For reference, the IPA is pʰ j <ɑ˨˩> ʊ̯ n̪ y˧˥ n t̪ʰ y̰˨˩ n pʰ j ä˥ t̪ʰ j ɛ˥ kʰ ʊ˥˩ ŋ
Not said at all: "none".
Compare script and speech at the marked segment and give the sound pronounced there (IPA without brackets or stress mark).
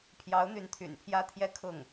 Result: ɑ˧˥